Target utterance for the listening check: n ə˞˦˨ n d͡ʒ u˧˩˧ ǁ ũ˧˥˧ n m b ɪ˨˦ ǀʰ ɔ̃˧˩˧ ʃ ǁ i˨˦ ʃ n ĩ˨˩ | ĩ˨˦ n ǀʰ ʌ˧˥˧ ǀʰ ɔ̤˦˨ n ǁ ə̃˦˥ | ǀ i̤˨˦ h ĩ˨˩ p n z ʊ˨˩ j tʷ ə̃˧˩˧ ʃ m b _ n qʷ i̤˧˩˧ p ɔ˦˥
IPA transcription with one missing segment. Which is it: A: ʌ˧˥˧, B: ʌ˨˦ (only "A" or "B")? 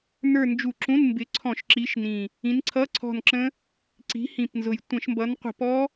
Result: B